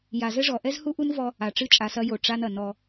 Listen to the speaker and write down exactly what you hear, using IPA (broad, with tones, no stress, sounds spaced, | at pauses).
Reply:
j a˨ z ɘ˦ ʐ ɔ˨ ʔ ɛ˦ z h u˦ ʔ u˦ n v ɔ˦ | a˨ ʈ͡ʂ ɨ˦ t͡ʃʼ a˨ s ɐ˦ j o˨ ʈ͡ʂ a˦ n ɐ˨ n ɔ˦